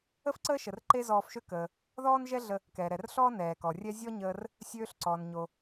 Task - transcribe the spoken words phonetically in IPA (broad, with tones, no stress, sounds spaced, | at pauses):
ə˥ f ǀ əː˥ ʃ ə˩ r ǃ e˥ z ɔː˧ f ʃ ø˥ k əː˩ | ð ɔː˥ n ʒ ɛ˥ ɮ ə˧ | k ɛː˩ ɾ ɛ˩ r ɬ ɔː˥ n ɛː˩ k ɔ˩ rʲ ɛ˥ zʲ ɔ˥ ɲ əː˧ r | sʲ øː˧ ɬ ǀ ɔ˩ n ɲ o˩